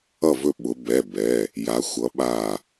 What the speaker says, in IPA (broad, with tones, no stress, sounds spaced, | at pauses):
ʌ˧˩ v ɵ˧˩ ɓ ʊ˩˧ b ɛ˩˧˩ b ɛ˩˧˩ | j a˩˧ xʷ ʌ˩˧ ɓ a˧˩